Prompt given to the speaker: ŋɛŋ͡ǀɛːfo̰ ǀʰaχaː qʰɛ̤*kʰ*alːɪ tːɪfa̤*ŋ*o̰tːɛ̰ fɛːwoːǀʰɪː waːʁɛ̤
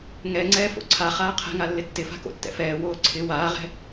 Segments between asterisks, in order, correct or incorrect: incorrect: ŋ, incorrect: k

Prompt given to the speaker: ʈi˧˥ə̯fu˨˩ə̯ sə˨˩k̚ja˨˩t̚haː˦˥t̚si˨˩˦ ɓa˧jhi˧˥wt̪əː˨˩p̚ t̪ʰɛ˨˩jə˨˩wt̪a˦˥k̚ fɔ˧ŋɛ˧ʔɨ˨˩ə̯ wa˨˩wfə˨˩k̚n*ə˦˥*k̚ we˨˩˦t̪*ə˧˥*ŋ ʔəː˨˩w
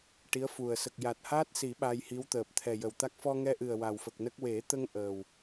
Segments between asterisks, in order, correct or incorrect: correct, incorrect: ə˧

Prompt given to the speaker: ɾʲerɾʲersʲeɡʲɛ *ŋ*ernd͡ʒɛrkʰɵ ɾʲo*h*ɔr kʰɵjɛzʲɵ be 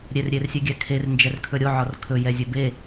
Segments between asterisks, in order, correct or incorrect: incorrect: kʰ, incorrect: ʕ

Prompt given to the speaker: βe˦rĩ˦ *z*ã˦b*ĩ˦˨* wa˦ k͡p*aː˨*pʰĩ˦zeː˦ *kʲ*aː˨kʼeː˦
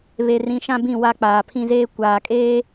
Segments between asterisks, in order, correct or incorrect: incorrect: ʃ, correct, correct, incorrect: kʷ

